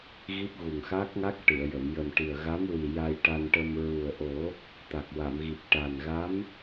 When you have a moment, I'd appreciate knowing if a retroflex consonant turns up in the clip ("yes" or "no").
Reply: yes